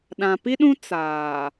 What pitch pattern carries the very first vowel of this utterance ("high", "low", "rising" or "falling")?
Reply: low